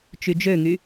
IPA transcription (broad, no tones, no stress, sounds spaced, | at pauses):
t͡ʃ y d͡ʒ ø ŋ y